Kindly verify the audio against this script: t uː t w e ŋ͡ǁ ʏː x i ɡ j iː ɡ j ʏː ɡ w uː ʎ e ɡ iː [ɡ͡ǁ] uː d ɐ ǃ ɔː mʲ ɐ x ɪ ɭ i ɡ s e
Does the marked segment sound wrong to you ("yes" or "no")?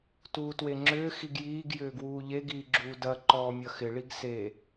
no